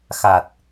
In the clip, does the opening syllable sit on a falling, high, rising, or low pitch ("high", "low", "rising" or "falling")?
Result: low